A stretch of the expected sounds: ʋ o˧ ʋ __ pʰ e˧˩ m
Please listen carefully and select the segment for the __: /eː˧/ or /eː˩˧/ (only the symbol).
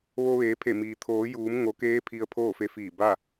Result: eː˩˧